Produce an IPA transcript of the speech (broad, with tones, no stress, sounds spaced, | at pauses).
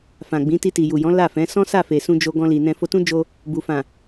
f ã˨ ɡ͡b ĩ˨˦ t i˧ t i˨ j u˨ j ɔ̃˨˦ l a˦˨ f ɛ̃˨˦ s ɔ̃˦ s a˦˨ f e˨ s ũ˧ d͡ʒ o˧ ɡ ɔ̃˧ l i˨ n ɛ̃˧ f o˧ t ũ˦ d͡ʒ o˧ | b u˨ f ã˨